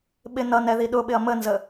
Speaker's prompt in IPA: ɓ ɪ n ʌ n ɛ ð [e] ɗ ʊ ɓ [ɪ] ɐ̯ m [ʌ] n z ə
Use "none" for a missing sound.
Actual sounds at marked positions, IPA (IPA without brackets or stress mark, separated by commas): i, ɪ, ə